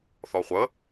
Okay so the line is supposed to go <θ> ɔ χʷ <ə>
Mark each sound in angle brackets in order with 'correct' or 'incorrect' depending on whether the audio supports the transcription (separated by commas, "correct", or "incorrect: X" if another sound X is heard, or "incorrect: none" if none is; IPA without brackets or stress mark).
correct, correct